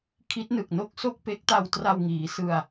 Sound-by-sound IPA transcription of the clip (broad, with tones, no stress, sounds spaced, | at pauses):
kʰ i˦˥ t̚ n ɯ˨˩ k̚ n o˥˩ k̚ s o˥˩ k̚ p e˦˥ k̚ t a˧ w t r a˧ w ŋ iː˩˦ s ɯ˧ a̯